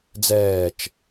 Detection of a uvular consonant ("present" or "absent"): absent